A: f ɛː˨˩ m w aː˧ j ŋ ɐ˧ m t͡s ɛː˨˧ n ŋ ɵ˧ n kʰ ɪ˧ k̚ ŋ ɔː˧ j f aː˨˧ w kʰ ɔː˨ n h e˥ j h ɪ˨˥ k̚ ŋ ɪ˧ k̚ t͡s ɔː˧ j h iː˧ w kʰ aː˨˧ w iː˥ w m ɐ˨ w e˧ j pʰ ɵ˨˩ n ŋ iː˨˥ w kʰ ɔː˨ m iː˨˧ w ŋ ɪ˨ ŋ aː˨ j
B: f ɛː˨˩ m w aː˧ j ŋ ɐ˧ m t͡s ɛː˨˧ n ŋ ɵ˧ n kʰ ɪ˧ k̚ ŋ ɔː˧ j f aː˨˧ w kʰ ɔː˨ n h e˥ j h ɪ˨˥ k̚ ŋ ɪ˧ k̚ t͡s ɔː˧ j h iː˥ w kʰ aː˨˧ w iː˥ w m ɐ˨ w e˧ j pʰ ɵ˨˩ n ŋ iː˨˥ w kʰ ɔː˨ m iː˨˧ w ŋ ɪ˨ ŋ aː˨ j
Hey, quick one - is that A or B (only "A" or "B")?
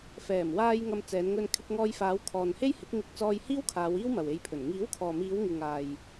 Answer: B